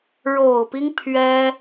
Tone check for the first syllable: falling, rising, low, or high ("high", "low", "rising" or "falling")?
low